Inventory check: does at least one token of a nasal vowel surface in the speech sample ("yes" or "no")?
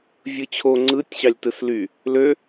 no